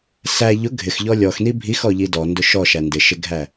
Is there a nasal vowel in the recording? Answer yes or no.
no